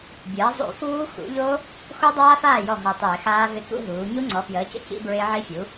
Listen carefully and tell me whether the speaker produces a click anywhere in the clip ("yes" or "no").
yes